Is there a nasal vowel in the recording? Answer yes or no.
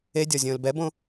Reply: yes